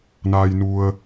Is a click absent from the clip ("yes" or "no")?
yes